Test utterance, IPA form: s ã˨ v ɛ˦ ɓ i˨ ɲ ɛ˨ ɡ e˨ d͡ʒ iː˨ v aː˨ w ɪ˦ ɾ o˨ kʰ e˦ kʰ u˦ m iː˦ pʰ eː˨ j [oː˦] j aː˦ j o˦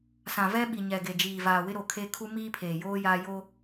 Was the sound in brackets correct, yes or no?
yes